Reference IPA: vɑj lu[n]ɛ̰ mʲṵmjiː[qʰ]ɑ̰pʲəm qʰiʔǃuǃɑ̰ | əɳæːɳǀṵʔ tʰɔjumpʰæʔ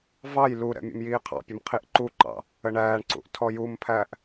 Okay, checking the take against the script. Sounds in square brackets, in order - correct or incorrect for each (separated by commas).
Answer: incorrect, correct